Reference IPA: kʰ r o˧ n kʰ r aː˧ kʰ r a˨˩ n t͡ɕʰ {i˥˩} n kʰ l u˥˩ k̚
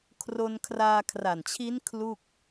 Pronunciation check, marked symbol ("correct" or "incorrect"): incorrect